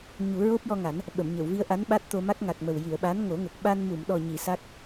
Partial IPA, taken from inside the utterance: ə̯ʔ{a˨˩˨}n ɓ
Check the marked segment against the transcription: incorrect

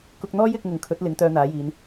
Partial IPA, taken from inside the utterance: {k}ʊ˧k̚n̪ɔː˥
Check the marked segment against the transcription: correct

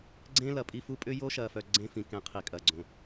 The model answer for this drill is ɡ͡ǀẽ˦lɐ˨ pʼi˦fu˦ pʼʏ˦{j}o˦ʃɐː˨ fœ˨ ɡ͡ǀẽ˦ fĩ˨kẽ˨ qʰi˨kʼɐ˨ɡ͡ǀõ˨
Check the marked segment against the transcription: correct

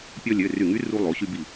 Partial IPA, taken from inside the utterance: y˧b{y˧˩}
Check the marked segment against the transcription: incorrect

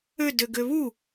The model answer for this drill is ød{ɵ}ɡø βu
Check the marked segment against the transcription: incorrect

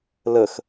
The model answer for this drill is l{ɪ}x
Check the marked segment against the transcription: incorrect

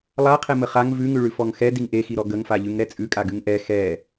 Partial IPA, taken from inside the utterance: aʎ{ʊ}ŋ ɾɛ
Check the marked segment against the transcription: incorrect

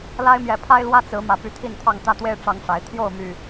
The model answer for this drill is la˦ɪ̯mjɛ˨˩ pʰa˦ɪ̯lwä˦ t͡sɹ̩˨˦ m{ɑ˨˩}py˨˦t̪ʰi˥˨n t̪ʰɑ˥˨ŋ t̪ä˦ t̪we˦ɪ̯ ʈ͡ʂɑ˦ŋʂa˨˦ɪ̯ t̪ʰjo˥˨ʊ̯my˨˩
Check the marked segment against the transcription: incorrect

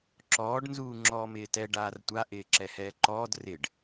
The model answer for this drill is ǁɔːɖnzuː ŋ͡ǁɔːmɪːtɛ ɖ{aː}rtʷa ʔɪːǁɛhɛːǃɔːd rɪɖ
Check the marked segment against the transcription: correct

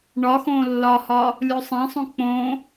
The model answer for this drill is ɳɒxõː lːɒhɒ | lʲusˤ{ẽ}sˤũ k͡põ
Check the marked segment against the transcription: correct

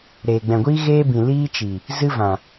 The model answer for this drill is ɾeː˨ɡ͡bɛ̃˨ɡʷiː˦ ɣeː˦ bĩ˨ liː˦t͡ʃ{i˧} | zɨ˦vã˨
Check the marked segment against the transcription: incorrect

